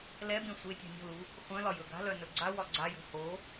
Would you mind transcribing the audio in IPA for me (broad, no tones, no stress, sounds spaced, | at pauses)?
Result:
l ɛ b ẽ sʷ e tʲ o̤ nʲ o̤ l u | χʷ œ̃ l ɒ j ɵ ɡ a̤ l œ n ɵ ɡ͡ǀ a w ɒ ɡ͡ǀ a j o̤ h o